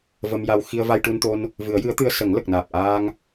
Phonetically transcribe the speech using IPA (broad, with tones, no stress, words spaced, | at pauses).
və˧mja˧w xi˧ə̯va˧jʈu˧nt̪o˧n | vɨ˨˩˦ə̯jɨ˧˥ə̯t̪ɨ˧ə̯ sə˨˩˦ŋlə˨˩k̚naː˨˩p̚ʔaː˧ŋ